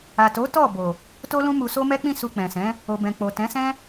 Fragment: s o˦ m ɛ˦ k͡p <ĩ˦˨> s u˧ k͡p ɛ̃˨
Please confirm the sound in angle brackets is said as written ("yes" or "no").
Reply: yes